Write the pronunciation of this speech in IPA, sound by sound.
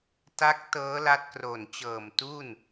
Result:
t a˦˥ k̚ t ɤː˦˥ l a˦˥ t̚ k r o˨˩ n t͡ɕ ɤː˨˩ m t uː˥˩ n

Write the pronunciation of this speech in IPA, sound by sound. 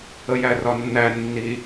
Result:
ə j æ r ɒ nː æ nː i

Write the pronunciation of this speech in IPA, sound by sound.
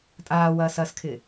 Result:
tʼ aː w ɐː s ɐː s kʰ ɪ

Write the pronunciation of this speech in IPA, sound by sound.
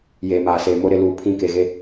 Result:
j eː˨ m aː˨ s eː˨ m o˦ ɾ ɪ˨ l uː˨ pʰ ĩ˦˨ k e˨ ɣ e˦

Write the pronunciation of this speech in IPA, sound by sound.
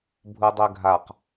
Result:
bʱ u dˤ ø ɡʱ a q

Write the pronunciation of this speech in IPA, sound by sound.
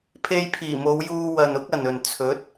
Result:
pʰ e˧ j pʰ iː˨˩ m o˨˧ w j uː˧ w ɐ˨ n ʊ˥ k̚ ɐ˨ n ɵ˨ n t͡sʰ ɵ˨˥ t̚

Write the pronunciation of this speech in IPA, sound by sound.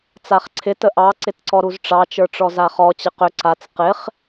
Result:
t͡s a χ ǀʰ ɪ t ə ʔ ɑ ǀ ɪ t ǀ ɔ ɾ u z ʈ͡ʂ ɑ t͡ʃ ə˞ ʈ͡ʂ ɔ z a χ ɔ t͡ɕ ə q ʏ ǀ a t͡s q ɪ χ

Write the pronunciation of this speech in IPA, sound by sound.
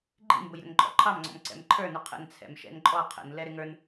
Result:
ɡ͡ǃ ḭ m b ʊ j ɾ ə̰ n ǃʼ ɔ̰ ǃʰ ɑ m ŋ͡ǀ ɔ̰ m ǀ ɛ̰ m ǃʰ ə˞ n ʊ qʰ ə̰ n t͡sʰ ɛ̰ m ʃ ɛ̰ n ǃʼ ɔ qʰ ə̰ n l ɛ ɾ ɪ ŋ ə˞ n

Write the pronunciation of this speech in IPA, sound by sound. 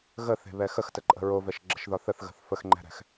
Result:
ɣ ə θ e̤ β ɛ x ə x t ə ǃʼ ə̤ ɹ o v ɛ ʃ ɡ͡ǁ ə̤ ʃ ð ɒ θ ə θ ɣ ə̤ θ f ə x ŋ͡ǃ ɛ̤ ɾ ɛ̤ x

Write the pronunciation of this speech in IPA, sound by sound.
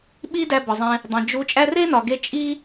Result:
ɓ i˦ d æ˧ b ɒ˨ zˤ ẽ˧ | dˤ ẽ˨ d͡ʒ u˧ t͡ʃʼ æ˦ r e˦ n ɒ˨ ɡ e˧ t͡ʃʼ i˦

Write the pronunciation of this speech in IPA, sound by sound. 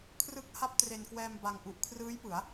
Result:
kʰ r ɯ˦˥ k̚ h a˥˩ p̚ t r e˧ n k w ɛː˧ m b a˧ ŋ ʔ u˨˩ ʔ kʰ r ɯː˦˥ j p ɯ˩˦ a̯

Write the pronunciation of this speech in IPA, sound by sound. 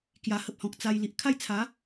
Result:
k j a˧ h ə˦ p̚ h ɔ̃˨ k̚ t͡s a˧ j l i˨ ʔ kʰ a˥˧ j t͡sʰ a˨˦

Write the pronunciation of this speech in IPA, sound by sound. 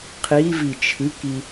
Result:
qʰ i v i t͡ʃʰ ɨ k i

